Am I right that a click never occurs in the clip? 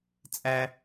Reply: yes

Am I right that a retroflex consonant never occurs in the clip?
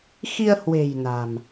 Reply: yes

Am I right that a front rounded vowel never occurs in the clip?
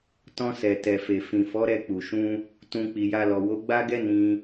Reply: yes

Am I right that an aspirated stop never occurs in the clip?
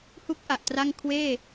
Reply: no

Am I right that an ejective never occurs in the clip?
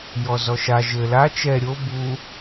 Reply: yes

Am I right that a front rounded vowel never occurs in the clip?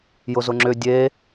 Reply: no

